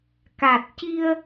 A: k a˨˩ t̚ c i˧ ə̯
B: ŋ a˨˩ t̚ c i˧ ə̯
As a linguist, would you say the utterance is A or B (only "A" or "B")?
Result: A